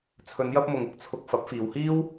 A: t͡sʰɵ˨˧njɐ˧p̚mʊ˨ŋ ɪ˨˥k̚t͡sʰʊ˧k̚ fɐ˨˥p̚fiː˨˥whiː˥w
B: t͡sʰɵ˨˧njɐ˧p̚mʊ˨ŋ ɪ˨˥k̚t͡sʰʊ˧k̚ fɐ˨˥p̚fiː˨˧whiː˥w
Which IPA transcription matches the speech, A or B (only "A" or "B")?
B